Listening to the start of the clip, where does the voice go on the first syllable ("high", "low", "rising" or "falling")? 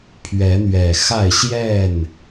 rising